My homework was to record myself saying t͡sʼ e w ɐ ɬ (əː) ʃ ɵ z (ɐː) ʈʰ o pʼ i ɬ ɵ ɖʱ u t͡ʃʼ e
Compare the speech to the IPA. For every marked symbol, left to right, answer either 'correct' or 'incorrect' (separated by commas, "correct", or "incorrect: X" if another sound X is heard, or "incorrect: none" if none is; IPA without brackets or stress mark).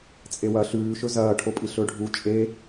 incorrect: ʉː, correct